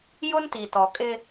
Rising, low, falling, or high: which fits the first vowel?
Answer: high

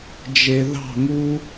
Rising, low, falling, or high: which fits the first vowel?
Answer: low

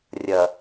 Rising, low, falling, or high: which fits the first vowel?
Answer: low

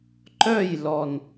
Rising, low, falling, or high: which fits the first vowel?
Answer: falling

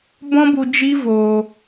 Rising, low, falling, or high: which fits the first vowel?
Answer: high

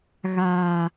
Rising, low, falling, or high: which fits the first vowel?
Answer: low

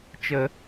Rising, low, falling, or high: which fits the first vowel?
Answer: low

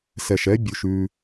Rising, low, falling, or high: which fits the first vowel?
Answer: low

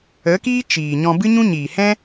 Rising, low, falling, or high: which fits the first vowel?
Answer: rising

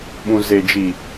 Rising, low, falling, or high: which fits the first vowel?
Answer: low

